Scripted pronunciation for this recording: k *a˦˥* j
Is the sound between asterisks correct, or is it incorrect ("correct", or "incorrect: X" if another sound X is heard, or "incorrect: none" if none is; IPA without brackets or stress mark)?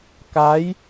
correct